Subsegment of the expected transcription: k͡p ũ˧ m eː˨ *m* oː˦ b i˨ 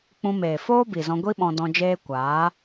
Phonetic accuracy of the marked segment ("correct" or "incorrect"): incorrect